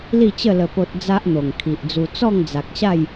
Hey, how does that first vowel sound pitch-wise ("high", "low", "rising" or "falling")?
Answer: falling